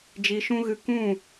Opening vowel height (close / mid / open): close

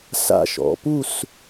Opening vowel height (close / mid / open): open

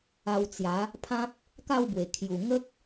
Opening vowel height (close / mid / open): open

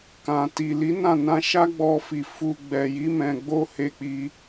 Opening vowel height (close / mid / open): open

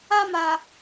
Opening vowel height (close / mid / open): open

